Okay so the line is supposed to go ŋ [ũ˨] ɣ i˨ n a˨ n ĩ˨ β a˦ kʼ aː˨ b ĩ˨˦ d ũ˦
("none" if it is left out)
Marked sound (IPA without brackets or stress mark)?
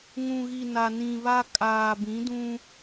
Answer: ũ˨